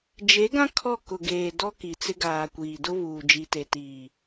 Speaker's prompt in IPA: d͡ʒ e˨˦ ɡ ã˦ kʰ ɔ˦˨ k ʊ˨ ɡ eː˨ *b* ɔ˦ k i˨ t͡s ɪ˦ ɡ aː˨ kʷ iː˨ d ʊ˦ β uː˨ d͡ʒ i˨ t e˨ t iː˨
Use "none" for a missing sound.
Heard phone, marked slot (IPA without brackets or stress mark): d